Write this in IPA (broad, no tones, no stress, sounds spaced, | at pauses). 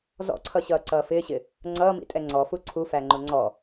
z ɔ̰ ǀʰ ʌ ɕ ʌː ǀ ʌː f ɪː ɕ ɪ | ŋ͡ǀ ʌː m ḭ tʼ ɛ ŋ͡ǀ ɔ f u ǀʰ u f æ ŋ͡ǃ ʊ ŋ͡ǀ ɔ